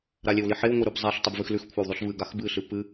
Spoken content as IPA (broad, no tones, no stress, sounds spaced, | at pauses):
ɾ a lʲ e w l i ħ e w ŋʷ i ɾ ʉ b zˤ a ɬ tˤ u b v ɨ x l ʉ x kʷʰ ɐ w ðˤ ʉ ɬ v ɨ ɡ a x b ɨ ɬ ɨ p ɨ